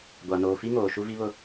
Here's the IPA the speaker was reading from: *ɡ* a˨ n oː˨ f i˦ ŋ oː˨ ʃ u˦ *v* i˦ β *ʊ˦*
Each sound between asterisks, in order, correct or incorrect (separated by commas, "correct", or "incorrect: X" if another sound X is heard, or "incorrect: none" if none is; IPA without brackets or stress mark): incorrect: ɡʷ, correct, correct